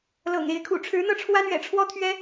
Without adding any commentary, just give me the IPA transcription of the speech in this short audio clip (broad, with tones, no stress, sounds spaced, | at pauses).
l ɤ̰˨˩ ŋ e˨˦ ɪ̯ kʰ ṵ˨˩ ʈ͡ʂʰ ɻ̩˨˦ n̪ ɤ˥˨ ʈ͡ʂʰ w a˦ n ɥ ɛ̰˨˩ ʈ͡ʂʰ w ɔ˦ t̪ʰ ɥ ɛ˦